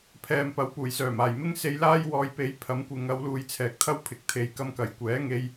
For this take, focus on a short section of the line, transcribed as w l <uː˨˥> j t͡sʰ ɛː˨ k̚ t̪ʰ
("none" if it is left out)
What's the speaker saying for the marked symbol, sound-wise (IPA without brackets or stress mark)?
uː˧